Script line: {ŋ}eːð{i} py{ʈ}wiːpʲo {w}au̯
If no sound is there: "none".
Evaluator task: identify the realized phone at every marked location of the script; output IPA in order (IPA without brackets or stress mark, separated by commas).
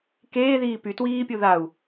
k, iː, t, ð